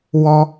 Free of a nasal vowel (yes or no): yes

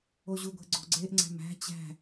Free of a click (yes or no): no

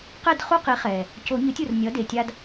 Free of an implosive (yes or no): yes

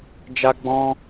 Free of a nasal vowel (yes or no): no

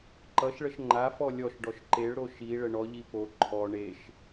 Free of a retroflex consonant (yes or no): no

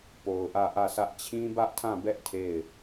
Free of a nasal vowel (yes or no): no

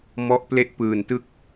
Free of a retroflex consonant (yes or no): yes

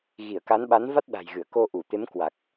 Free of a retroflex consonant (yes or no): yes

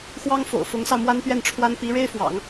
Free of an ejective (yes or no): yes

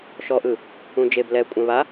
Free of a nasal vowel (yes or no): no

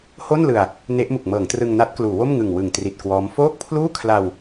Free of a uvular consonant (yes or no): yes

